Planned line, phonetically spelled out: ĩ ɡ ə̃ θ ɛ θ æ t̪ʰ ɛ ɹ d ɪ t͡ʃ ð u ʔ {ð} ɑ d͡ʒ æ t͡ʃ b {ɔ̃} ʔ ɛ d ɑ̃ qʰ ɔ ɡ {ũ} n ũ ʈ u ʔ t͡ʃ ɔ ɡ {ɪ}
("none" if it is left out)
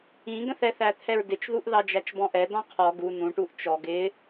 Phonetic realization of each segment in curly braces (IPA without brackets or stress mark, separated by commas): ð, ɔ̃, u, ɪ